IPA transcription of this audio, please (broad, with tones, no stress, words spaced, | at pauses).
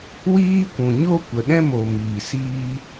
wiː˦kʷũ˨ ɲo˦ kʷə˨ɗɛ̃˦mo˨miː˨ siː˦